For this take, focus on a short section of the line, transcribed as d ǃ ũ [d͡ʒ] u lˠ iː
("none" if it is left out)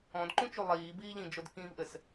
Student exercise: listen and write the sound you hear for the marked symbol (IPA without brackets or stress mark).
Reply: t͡ʃ